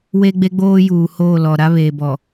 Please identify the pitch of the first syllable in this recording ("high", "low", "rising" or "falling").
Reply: high